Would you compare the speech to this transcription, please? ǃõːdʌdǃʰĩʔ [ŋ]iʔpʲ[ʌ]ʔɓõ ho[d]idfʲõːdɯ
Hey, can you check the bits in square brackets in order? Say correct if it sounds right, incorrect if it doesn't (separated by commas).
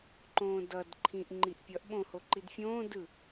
incorrect, correct, incorrect